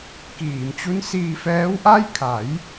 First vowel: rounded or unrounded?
unrounded